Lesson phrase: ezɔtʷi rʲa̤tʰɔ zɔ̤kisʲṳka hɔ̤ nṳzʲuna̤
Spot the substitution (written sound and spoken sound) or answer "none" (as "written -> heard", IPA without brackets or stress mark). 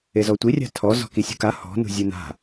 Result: none